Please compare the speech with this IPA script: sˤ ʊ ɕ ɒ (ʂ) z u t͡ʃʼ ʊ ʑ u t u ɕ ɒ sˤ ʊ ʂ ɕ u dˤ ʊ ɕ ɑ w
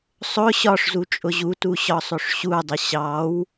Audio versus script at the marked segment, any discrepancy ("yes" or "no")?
no